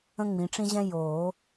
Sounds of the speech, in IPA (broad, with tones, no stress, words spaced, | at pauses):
ə̃˥ŋ͡mĩ˨˦ʈ͡ʂĩ˥ʑɛ̃˥ joː˨˩˦